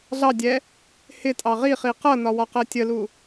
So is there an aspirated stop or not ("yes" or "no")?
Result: no